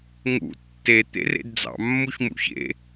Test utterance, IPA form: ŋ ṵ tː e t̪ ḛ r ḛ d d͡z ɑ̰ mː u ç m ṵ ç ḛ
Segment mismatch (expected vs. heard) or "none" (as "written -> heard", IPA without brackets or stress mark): none